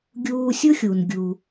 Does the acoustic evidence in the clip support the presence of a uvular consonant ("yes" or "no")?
no